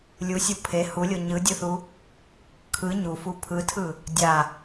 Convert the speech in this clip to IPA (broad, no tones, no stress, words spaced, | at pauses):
lʲusʲu pʰe hulʲo ɲɯdʲɯθu | kʰɯ ɲufu pʰɯtʰɯ | dʲa